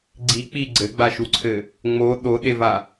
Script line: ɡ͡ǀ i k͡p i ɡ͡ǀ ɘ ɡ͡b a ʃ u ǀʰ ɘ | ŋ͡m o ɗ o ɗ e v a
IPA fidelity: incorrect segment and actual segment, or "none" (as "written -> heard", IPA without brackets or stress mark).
none